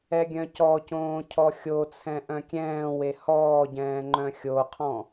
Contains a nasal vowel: yes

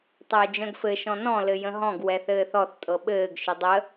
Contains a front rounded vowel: yes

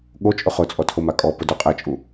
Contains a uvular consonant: yes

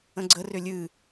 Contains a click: yes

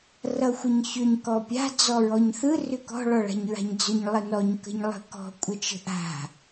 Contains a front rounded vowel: yes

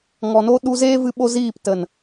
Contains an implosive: yes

